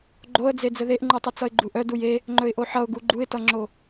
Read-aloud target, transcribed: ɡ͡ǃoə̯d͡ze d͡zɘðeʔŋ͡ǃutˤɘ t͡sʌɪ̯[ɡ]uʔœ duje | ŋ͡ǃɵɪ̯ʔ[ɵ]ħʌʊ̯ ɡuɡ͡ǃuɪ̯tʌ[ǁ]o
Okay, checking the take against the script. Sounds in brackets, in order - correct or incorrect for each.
incorrect, incorrect, incorrect

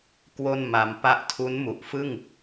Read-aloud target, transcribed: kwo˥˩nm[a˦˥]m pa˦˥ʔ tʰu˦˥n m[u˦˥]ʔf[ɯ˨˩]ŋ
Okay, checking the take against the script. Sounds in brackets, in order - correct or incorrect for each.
incorrect, incorrect, incorrect

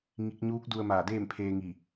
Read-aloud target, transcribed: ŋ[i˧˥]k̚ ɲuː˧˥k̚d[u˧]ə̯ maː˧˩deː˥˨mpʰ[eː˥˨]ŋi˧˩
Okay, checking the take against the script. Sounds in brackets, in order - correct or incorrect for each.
correct, correct, incorrect

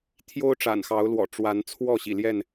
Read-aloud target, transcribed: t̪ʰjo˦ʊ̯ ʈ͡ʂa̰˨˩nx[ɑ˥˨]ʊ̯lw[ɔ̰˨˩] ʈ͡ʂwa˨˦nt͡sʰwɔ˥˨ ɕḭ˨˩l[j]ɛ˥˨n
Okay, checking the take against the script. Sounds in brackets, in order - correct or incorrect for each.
incorrect, correct, correct

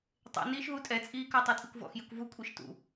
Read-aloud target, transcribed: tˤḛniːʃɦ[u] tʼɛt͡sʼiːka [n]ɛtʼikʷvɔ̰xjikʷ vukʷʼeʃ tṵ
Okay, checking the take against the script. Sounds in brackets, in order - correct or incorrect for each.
correct, incorrect

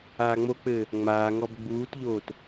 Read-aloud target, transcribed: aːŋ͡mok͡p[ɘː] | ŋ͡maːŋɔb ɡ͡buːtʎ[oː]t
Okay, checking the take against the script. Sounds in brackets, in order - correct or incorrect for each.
correct, correct

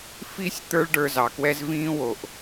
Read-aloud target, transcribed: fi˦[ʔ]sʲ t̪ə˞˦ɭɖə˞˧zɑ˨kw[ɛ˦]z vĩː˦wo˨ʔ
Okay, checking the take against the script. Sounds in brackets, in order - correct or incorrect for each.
incorrect, correct

